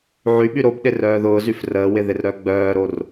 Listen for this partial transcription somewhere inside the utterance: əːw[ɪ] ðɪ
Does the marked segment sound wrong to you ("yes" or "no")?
no